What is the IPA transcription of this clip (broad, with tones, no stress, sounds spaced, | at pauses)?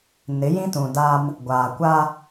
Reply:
n ɪ˨˦ j ĩ˦ t ũ˨ d a˦ m | ɡʷ aː˨ kʷ a˦